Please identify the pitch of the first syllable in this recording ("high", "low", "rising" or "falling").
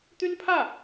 high